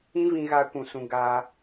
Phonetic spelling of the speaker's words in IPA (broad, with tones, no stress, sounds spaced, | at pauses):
ĩ˦ v ĩ˧ ɣ a˧ kʷ ũ˨ s ũ˧ ɡ a˧